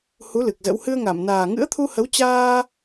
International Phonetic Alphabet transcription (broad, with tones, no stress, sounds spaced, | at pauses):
h u˨˦ l ɨ˨˩ k̚ z ə̰˧˥ w h ɨ˧ ə̯ ŋ a˧˩ m n aː˨˩ ŋ ɨ̰˧˥ ə̯ t̪ʰ u˧ h ə˨˦ w t͡ɕ aː˧